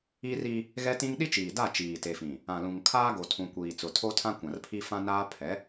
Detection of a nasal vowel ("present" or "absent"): present